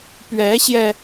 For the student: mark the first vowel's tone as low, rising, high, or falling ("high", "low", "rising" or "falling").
rising